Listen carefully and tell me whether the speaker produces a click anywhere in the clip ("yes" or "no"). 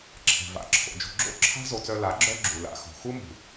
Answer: yes